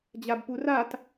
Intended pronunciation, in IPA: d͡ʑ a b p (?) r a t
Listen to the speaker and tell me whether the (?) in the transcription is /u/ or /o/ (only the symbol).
u